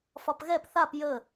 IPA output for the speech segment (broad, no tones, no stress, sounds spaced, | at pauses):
f ɒ p ɣ ɛ p θ a p j ə